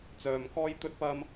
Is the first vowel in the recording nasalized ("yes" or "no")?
no